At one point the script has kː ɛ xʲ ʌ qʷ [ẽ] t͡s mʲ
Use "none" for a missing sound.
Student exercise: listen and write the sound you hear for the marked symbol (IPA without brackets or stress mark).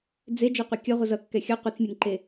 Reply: e